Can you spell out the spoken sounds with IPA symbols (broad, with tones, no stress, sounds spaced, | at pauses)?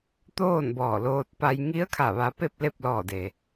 t̪ oː˥˨ n b ɔː˧˩ l oː˧ t̚ p a˧ j ŋ i˧˥ ə̯ kʰ a˧˩ ʋ a˧˥ p e˥˨ p̚ l e˥˨ p̚ l ɔː˧˩ d e˩